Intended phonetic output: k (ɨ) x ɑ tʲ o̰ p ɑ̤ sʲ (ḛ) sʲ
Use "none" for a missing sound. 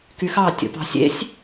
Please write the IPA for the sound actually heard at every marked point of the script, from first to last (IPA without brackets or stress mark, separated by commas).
y, ḛ